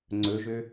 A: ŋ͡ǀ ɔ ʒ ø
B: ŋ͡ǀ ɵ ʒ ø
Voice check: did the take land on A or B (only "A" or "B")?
B